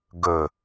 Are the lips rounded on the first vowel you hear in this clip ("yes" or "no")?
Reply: yes